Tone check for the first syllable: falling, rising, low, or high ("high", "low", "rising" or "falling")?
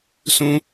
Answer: high